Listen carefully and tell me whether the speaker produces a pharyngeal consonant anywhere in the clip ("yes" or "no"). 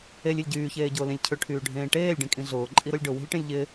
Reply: no